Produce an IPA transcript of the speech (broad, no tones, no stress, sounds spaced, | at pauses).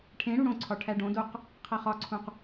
ʈʰ ẽ ɽ u ɽ õ ǀʰ ɒ ʈʰ æ ɖ õ d o q | qʰ æ χ ɒ ǀʰ ũ q